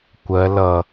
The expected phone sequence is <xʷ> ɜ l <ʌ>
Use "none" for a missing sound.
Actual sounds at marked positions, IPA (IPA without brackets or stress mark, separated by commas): kʷ, ʌ